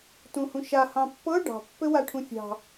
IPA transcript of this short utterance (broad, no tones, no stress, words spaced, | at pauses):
tũhũʃa hɑ̃pːɤ ɖɑ̤ pːɘwaʈʰũfʲɑ̤